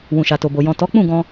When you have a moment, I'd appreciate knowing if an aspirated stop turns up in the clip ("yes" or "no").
no